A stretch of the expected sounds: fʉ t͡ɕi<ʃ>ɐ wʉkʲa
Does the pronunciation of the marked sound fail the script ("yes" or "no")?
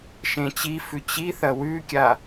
yes